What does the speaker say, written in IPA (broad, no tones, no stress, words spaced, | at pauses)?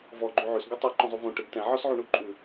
vɔ ɡ͡ǃʉʕʉs ɡʉtˤʉ ǃɔ̃zˤuvõ ʈeɡtɛ̃ ʕɔsʕuɳuǃʼʉ